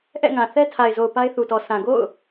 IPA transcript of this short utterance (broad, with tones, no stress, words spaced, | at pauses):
ʔɛ̰˦˨ŋã˨ θɛ˦tʰa˨ɪ̯zo˨ʊ̯ pa˦ɪ̯θu˨tɔ˨ sʰã˨ɡo̰˦˨ʊ̯